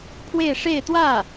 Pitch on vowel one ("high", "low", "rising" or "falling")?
falling